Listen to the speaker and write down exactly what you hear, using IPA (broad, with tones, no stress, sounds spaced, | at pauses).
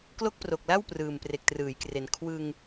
k l o˥˩ k̚ p r o˨˩ k̚ l a˥˩ w p r ɯː˨˩ m p r e˨˩ k̚ t r ɯː˩˦ j k r e˨˩ n kʰ w ɯ˧ ŋ